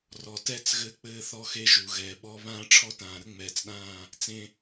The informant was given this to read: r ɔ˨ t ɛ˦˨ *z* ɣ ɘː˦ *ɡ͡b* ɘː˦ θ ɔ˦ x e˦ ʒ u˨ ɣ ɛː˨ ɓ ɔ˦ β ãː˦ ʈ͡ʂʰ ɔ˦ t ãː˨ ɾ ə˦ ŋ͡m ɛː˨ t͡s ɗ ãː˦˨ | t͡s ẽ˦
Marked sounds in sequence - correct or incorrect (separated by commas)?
incorrect, incorrect